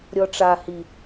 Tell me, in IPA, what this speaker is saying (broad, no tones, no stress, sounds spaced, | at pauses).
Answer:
ɾʲ ɔ ʈ͡ʂ a h i